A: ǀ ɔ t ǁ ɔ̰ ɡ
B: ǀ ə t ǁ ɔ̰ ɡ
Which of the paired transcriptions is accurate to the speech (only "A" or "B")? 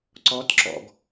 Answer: A